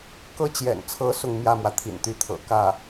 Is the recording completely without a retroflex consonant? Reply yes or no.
yes